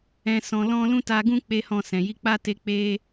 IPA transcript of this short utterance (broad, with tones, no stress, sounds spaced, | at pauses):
ɛ̃˧ s ɔ̃˧ l ɔ̃˦ l ũ˦ t a˧ ɡ ũ˦ k͡p e˦ h ɔ̃˦˨ s ɛ̃˨ j i˧ k͡p a˦ t e˧ k͡p e˦